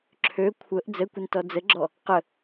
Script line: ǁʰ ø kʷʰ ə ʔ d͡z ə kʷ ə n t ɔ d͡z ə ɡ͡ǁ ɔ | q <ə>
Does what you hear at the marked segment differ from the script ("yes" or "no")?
no